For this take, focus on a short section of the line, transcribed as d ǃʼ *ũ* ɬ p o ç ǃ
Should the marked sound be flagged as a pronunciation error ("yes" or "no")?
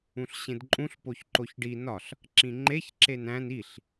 no